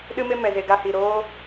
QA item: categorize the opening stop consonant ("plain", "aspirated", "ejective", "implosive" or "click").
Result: implosive